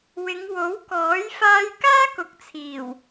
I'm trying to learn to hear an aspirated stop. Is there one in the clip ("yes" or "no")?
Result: yes